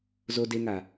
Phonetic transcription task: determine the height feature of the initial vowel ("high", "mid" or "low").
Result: mid